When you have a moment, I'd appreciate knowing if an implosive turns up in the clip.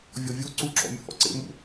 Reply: no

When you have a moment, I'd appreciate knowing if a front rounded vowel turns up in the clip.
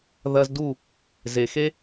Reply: no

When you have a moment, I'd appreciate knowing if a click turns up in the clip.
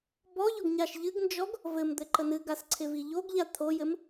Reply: yes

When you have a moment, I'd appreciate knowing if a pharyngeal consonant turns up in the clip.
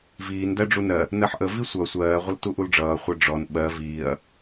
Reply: yes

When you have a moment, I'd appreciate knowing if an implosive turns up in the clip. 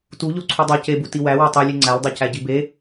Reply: no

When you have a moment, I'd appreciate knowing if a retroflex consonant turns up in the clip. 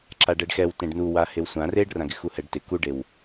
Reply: yes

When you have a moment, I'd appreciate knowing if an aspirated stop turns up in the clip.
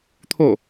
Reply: yes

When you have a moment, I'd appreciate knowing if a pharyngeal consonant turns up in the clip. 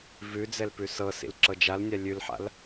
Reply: yes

